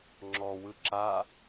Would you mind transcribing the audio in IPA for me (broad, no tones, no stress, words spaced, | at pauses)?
ŋ͡ǁɔwɯ ǁa